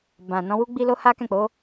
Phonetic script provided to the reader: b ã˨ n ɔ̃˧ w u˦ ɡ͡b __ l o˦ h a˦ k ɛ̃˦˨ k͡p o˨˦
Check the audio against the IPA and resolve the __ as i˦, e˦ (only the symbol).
i˦